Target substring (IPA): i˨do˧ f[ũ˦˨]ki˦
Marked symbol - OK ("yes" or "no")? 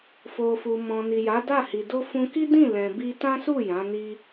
no